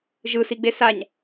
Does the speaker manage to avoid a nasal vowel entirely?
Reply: yes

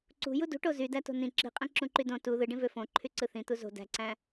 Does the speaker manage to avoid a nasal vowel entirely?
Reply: no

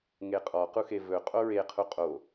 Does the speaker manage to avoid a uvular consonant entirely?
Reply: no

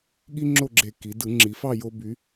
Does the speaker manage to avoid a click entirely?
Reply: no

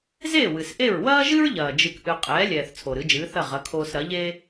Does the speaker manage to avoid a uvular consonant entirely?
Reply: no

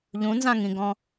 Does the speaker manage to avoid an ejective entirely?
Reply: yes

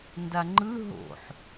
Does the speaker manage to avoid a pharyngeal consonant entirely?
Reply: no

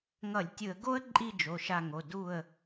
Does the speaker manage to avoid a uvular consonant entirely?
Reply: yes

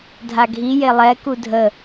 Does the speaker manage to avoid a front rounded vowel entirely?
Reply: yes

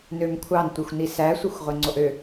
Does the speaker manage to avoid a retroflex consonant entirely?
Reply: yes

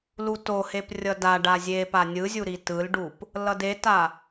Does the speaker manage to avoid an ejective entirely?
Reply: yes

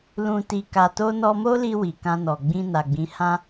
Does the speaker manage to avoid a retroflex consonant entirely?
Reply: yes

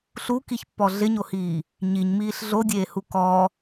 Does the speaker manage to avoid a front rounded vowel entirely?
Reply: yes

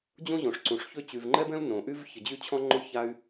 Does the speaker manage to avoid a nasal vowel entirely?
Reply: no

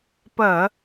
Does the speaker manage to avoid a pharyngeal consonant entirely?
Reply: yes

